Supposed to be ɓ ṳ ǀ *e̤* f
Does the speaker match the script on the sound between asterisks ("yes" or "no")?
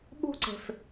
yes